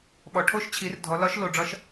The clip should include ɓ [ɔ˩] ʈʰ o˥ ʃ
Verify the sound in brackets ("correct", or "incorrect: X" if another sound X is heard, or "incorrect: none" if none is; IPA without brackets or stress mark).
correct